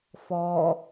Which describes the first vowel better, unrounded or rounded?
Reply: rounded